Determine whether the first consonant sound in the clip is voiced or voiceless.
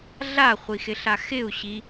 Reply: voiced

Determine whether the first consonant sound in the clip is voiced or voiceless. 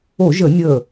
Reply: voiced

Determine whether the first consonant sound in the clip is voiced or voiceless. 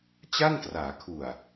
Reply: voiceless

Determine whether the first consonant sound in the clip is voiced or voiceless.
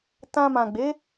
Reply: voiceless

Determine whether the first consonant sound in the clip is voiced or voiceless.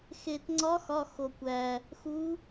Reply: voiceless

